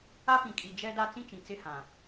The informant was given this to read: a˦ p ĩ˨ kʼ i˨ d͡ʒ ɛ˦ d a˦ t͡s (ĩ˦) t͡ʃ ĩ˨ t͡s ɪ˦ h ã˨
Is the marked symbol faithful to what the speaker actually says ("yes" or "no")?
yes